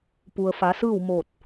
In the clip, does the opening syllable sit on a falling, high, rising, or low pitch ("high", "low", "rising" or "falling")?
low